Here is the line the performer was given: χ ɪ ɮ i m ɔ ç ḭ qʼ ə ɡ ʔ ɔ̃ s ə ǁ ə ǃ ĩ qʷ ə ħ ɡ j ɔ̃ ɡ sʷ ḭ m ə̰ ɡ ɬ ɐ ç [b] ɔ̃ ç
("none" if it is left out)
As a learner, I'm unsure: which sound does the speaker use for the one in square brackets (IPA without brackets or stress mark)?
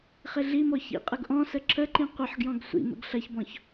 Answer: b